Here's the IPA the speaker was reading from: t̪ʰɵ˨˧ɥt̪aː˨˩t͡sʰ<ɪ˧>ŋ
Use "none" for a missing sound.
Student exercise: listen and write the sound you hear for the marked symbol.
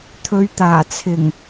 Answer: ɪ˨˩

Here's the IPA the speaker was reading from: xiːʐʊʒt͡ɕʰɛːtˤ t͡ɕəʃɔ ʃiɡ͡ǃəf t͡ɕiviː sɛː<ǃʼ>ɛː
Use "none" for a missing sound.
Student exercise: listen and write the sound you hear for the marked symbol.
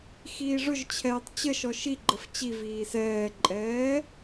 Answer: ǃʼ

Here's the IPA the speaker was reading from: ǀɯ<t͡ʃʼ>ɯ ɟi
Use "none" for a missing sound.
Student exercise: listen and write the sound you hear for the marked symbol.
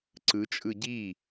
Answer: t͡ʃʼ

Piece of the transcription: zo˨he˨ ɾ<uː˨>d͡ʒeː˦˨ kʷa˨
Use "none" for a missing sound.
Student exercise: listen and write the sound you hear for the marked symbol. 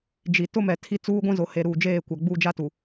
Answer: uː˨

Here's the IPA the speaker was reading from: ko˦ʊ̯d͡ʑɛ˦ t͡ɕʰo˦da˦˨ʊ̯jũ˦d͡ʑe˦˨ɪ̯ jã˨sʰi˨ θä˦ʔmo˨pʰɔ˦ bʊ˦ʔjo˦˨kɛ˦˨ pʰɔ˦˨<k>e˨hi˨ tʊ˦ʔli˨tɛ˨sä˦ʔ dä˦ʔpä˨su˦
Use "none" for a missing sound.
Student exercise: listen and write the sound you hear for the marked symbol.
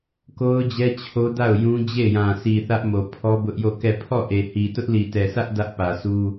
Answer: ʔ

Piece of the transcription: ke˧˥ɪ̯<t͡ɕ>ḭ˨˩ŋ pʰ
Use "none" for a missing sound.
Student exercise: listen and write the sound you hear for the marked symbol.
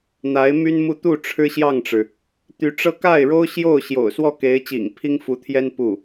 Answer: t͡ɕ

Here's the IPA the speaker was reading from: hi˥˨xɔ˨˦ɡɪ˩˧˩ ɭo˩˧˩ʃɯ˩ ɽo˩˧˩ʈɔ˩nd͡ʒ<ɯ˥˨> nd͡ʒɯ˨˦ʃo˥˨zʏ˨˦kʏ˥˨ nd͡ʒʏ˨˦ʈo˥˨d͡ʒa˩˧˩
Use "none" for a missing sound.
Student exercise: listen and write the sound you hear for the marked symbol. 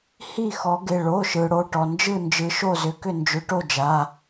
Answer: ɯ˥˨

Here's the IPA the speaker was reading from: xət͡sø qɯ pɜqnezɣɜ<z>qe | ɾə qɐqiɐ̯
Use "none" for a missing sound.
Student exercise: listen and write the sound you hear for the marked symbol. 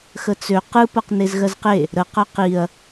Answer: z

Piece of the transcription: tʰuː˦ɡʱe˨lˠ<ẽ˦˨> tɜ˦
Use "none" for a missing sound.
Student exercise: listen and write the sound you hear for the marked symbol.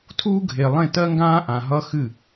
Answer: ẽ˦˨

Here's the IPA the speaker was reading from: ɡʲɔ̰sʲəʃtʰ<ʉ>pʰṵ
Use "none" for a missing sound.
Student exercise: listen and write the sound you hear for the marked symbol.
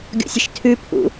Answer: ʉ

